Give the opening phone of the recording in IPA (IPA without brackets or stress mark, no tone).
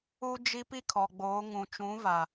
u